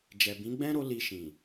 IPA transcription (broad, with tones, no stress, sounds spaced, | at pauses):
d͡ʒ ɛ˨ b ĩ˨˦ ɡ͡b ɛ̃˦ ɾ o˦ l i˧ ʃ ĩ˨